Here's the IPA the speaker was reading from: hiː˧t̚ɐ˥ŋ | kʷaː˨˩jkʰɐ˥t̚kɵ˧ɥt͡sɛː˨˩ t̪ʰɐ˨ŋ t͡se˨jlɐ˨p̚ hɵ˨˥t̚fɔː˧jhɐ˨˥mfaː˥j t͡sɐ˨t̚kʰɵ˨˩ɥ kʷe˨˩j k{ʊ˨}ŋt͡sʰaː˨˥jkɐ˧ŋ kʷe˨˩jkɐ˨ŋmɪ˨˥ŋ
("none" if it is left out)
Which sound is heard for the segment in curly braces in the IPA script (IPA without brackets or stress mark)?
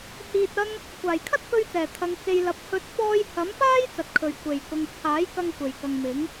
ʊ˨